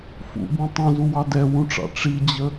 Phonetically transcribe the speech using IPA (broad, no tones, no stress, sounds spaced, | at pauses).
f ṵ b ũ tˤ õ z u w ɑ d ɛ w ũ ʈ͡ʂ ɑ̰ ʈ͡ʂ i d͡ʑ ə